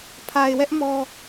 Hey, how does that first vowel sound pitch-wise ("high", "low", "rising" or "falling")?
low